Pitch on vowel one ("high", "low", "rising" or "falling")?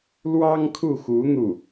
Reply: high